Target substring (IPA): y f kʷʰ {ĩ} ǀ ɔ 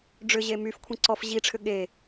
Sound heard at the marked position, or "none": ĩ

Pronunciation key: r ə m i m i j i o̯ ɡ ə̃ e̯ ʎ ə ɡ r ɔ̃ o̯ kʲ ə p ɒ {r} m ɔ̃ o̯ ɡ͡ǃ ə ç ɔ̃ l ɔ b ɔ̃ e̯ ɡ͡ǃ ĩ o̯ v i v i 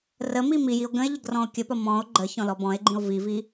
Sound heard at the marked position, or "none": none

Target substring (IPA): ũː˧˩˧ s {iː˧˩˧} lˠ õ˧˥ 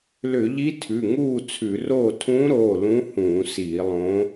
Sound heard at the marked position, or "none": iː˧˩˧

